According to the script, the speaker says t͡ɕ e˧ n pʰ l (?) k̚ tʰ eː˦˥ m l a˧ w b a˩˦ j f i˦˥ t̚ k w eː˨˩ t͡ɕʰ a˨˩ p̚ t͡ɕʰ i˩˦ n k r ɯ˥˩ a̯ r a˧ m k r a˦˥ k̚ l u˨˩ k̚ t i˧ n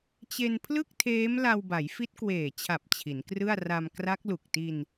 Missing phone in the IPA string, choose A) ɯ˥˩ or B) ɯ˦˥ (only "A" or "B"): A